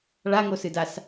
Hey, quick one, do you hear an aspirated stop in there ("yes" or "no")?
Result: no